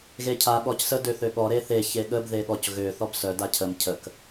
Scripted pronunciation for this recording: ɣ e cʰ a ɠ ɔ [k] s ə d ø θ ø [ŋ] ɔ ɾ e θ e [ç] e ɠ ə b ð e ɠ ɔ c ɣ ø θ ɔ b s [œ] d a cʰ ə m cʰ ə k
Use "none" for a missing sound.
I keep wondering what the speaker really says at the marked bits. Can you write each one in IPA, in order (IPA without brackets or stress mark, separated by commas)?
c, ɠ, ç, œ